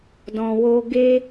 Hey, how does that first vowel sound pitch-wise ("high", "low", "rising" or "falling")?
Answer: low